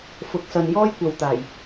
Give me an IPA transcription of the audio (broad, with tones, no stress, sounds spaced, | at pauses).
f ʊ˨˥ k̚ s ɐ˨ n j ɔː˥ j kʷ ɐ˨ w t̪ aː˨˩ j